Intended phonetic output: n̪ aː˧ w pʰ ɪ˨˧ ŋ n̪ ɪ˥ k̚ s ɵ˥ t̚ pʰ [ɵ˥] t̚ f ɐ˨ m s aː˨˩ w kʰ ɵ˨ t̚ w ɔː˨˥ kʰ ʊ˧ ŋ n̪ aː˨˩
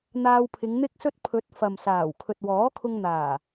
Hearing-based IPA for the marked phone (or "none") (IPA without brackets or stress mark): ɵ˨˥